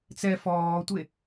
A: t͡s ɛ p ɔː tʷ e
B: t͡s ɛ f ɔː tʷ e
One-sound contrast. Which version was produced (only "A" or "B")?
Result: B